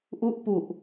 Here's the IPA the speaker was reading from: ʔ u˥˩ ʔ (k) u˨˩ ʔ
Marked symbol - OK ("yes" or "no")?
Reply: no